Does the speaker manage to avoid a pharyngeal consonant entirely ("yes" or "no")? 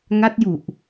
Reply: yes